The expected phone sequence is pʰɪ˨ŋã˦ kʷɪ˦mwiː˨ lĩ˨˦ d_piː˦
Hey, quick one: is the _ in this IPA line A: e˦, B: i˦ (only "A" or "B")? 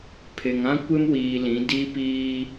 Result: B